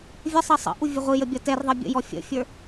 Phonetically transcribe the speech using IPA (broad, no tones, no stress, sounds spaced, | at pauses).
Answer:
vʲ ə sˤ ʌ sˤ ə̰ ʔ u vʲ ə ʁʷ i j ə bʲ ʌ t ɛ r ðˤ ʌ bʲ ə̰ j ɔ fʲ ə̰ fʲ ə˞